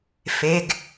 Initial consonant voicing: voiceless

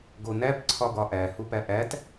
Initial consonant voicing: voiced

